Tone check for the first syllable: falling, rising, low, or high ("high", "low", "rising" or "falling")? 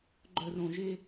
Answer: low